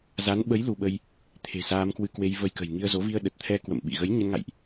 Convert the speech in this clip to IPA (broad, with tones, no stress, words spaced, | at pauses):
za˨˦nɓə˨˦j lu˧ɓə˧j | t̪ʰe̤˨˩ saː˧mkwɨ˧kwe˧j və˧jkə̤˨˩j ŋi˧ə̯zo˨˦ vi˧ə̯ɗə˨˩t̚t̪ʰɛ˧ kwə̰˧˨mɓḭ˧˨ ɣə˨˦jɲə˧nŋa̰˧˨jʔ